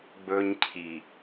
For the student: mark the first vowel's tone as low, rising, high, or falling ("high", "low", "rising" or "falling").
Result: high